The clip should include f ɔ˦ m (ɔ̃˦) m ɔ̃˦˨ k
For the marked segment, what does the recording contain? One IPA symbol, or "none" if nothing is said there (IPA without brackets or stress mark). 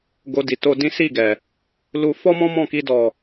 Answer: ɔ̃˦